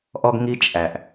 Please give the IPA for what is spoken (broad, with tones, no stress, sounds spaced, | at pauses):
ʔ ɔ˧ ɡ ŋ i˧ t͡ʃʼ æ˨ ʔ